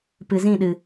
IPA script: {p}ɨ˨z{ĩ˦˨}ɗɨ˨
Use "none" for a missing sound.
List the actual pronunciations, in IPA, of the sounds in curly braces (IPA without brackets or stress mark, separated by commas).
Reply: p, ĩ˦˨